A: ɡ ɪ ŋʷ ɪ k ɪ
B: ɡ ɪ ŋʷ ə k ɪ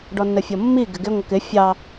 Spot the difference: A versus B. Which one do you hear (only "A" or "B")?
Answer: B